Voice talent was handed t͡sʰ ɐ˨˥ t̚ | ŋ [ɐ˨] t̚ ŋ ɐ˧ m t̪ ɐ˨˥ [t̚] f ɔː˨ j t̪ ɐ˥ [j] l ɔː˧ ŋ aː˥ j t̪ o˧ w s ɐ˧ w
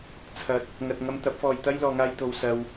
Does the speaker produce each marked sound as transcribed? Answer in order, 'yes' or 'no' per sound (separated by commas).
no, no, yes